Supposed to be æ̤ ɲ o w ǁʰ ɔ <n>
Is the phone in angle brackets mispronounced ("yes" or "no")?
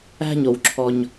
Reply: yes